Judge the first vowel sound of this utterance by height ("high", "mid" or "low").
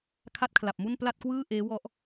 low